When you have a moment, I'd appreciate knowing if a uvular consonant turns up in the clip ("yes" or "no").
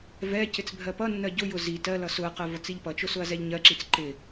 yes